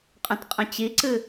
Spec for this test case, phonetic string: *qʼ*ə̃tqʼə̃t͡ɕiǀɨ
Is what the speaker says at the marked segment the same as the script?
yes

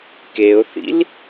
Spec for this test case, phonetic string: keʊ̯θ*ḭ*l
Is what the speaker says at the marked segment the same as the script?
yes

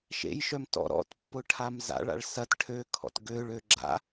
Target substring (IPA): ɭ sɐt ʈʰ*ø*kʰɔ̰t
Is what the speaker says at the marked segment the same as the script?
yes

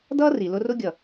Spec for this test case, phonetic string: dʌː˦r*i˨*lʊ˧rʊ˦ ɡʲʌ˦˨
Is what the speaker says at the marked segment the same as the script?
yes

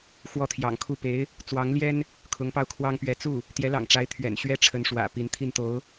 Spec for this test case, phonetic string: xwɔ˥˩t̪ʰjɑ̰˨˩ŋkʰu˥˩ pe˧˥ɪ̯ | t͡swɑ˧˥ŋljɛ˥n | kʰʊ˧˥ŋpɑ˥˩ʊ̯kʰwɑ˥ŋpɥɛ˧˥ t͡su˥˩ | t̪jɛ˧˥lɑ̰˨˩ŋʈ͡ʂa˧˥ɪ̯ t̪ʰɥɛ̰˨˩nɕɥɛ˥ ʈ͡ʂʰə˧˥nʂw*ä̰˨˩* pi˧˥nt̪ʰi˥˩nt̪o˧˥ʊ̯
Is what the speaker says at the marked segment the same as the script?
yes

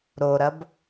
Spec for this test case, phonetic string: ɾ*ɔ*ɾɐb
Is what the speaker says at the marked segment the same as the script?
no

